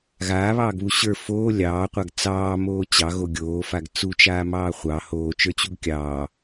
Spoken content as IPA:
ɣ aː β ɑː ɡ β u ɕ ə˞ f oː lʲ ɑː qʷ a ɡ t͡s ɑː m oː t͡ɕ ɑ ɣ o ɡʲ oː f a ɡ t͡s u t͡ʃ aː m ɑː χʷ ɑ h oː t͡ʃ ə˞ t͡ɕ u ɡ kʲ ɑː

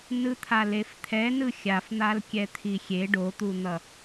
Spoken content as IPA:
n ɯ t̪ʰ a l e f t̪ʰ ɛ n ɯ xʲ a f n̪ a l kʲ ɛ t̪ʰ i xʲ e ɖ o t̪ u n̪ ʌ

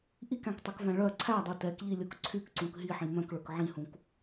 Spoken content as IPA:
ʔ i k æ̃ k tˤ ɛ k v æ̃ ɭ œ ǀʰ æ dˤ u t ɛ k ʎ i lʲ o k ǀʰ y k ǀ ũ k ɦ i ħ ĩ m œ̃ k ɭ ɵ k ʕ ĩ h ũ k

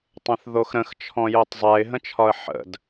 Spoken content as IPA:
tˤ ɛ̃ θ ð o x ɾ ə̃ x t͡ʃʰ ɔ̃ j o tˤ zˤ ɛ ɪ̯ ɦ ə̃ t͡ʃʰ ɒ ə̯ ħ ə̰ d

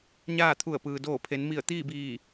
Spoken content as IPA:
ɲ aː˥˨ t̪ʰ u˧˩ ə̯ p ɯː˩ d oː˧˩ pʰ e˩˧ n m i˧˩ ə̯ t̪ iː˥˨ b iː˧˩

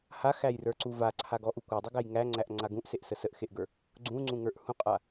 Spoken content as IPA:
h a x æ j r ə˞ ǀ u v a ǀʰ a ɡ ɔ ʔ u kʷ a dˤ u ɡ æ j ŋ æ ŋ͡ǀ æ ʔ ŋ͡ǀ a ɡ ũ ʔ s e ʔ s ə s ə ʔ x e ʔ ɡ ə˞ | ɡ͡ǀ ũ ŋ͡ǀ ũ ŋ ə˞ ʔ h ũ qʼ a

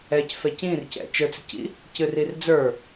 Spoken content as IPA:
ɛ c f ɛ c ĩ r c ɛ̰ t͡ʃ ə˞ t͡s ɪ c ḭ | c ɨ r i r d͡z ə˞

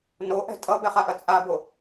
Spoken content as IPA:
n o ʔ ɛ̤ tʼ ʌ b ɛ χ a ʔ ɐ t͡sʼ a b o

